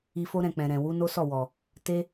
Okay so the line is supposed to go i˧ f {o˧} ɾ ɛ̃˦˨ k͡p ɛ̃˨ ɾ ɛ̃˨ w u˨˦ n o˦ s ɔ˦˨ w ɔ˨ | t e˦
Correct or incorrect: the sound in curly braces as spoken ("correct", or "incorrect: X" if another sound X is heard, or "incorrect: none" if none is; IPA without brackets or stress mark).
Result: incorrect: o˦